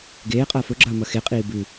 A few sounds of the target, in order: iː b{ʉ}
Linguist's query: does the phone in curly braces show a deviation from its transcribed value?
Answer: no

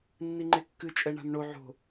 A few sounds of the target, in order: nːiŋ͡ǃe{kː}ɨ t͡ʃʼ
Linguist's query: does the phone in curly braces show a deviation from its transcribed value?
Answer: no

